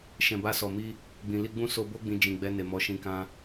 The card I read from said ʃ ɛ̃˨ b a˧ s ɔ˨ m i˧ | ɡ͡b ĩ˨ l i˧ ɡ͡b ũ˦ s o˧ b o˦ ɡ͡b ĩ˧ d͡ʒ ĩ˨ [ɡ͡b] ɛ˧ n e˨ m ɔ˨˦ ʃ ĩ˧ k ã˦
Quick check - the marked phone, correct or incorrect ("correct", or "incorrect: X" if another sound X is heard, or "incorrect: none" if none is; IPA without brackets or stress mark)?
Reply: correct